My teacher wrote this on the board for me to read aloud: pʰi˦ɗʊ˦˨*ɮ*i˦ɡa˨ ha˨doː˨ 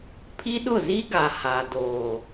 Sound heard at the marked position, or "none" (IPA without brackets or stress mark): z